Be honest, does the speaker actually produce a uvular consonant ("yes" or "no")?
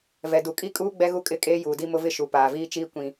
no